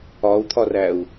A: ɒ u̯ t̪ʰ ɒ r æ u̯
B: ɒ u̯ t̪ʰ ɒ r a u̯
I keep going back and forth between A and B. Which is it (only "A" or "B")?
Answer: A